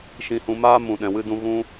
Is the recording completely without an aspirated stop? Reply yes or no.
yes